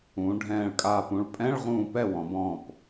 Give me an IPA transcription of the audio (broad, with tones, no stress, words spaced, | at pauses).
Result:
ũː˩˧ɖʱɛ̃ː˧˩ɭkʼaː˧˩p ũ˧˩ɭpʼɛ̃˧˥˧ɭ ʁũː˥˨ pɛ˥˨wɔ̃˩˧b ɔ̃˧˩p